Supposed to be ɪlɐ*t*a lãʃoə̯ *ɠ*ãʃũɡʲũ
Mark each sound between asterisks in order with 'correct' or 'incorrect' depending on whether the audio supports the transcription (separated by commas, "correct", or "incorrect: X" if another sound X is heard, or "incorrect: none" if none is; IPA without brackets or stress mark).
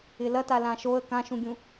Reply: correct, incorrect: k